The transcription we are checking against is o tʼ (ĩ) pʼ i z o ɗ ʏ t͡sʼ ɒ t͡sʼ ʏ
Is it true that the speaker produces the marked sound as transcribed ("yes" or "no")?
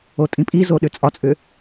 yes